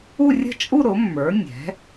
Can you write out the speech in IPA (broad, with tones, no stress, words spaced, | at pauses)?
u˥˧rʲə̤˥˧t͡ʃʼu˥˧ ɾʊ˩˥mːə˞˩˥ nʲɛ̤˩˥